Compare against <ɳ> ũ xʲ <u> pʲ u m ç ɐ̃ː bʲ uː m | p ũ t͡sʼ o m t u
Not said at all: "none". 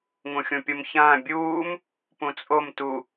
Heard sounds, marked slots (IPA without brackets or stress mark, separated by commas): ŋ, ũ